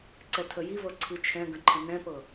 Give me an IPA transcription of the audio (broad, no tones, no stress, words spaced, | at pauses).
ǀɛtʰəjivɤ ǀʰit͡ʃʰɛ̃ɡə̃ ǃʰə̃nɛ̃pɤ